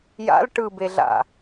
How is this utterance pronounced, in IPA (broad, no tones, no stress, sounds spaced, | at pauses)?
j a̰ l ʈ ɯ b e ɮ a̰